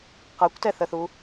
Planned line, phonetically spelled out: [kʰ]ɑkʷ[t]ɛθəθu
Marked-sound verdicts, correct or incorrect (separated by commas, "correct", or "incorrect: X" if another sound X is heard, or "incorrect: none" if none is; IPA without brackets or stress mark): incorrect: q, correct